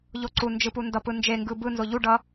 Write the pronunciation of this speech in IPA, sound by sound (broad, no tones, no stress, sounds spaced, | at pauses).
ʎ o ǀ u n d͡ʒ ɯ p u n d ʌ p ɯ n d͡ʒ e ŋ ɡ ɯ b ɯ n z o ʎ u ɖ ʌ